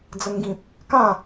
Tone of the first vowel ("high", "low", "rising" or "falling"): high